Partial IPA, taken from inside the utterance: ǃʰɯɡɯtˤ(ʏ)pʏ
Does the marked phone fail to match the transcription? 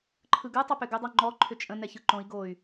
no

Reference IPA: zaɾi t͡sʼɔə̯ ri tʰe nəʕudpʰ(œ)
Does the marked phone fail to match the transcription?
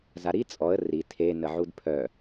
no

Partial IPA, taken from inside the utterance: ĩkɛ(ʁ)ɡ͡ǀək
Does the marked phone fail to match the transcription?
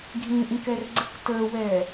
yes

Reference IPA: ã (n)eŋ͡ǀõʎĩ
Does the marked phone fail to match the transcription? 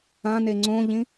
no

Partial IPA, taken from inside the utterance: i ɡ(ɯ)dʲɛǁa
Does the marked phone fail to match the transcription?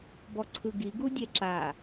yes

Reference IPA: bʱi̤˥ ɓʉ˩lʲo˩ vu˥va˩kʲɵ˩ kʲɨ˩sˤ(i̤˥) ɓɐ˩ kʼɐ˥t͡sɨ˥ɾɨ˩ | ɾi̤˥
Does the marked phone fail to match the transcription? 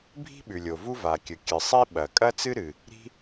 yes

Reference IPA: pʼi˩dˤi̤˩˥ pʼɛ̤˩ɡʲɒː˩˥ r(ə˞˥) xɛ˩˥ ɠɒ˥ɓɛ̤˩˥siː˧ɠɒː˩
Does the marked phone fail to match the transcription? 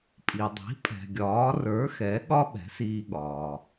yes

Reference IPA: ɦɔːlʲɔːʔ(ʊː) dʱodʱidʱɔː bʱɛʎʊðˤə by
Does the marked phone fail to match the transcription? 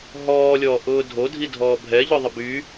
no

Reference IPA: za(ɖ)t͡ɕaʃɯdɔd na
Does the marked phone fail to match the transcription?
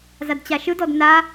yes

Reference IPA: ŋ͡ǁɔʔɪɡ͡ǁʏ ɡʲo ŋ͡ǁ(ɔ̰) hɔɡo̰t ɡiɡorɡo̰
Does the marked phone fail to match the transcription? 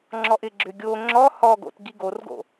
yes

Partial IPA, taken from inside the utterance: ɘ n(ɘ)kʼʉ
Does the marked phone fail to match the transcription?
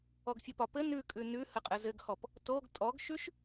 yes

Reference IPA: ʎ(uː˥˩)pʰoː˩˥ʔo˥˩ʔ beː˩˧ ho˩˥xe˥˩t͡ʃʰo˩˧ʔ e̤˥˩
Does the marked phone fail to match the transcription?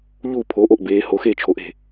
no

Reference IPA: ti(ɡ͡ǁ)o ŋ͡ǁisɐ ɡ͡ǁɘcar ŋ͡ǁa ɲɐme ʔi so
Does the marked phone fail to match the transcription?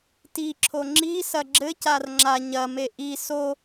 yes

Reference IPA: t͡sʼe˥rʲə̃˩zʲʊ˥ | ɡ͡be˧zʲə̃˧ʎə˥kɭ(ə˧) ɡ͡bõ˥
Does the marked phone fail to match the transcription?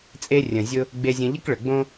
yes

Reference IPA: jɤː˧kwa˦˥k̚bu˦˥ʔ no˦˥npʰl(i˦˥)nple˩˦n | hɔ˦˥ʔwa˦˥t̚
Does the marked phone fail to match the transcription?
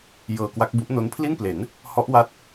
yes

